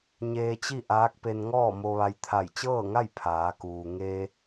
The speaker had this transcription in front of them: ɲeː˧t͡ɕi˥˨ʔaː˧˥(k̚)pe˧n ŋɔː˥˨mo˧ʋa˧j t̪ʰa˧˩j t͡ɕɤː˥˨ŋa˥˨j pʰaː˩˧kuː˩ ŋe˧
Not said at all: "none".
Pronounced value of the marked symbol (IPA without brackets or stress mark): k̚